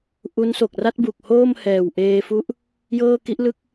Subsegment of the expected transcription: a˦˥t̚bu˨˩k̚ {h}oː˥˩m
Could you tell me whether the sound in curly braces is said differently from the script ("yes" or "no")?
no